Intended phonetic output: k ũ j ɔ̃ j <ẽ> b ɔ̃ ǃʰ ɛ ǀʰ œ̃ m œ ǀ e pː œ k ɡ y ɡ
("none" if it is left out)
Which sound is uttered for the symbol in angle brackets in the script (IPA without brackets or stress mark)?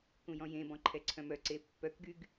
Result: ẽ